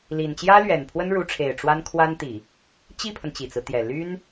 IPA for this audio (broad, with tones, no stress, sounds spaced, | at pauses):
l i˨˩ n t͡ɕ j ä˥ l ɥ ɛ˨˩ n pʰ w ə˥ n ɻ u˧˥ ʈ͡ʂʰ e˨˩ ɪ̯ ʈ͡ʂ w a˥ n kʰ w a˥ n t̪ i˨˩˦ | t͡ɕ i˥˩ pʰ ə˩ n t͡ɕ i˨˩ t͡s ɹ̩˦ t̪ j ɛ˨˩ l y˥ n